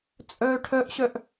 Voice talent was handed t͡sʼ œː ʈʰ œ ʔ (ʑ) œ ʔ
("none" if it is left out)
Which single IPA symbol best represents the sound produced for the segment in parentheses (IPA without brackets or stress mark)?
ɕ